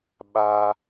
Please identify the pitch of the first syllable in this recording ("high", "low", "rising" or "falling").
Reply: high